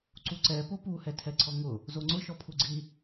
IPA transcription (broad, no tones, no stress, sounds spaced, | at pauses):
ǀ u ǀ ɛ p o p u h ɛ tʰ ɛ ǀʰ ɔ ŋ ʊ | z o ŋ͡ǀ ʊ ʃ ɔ pʰ u ɡ͡ǀ i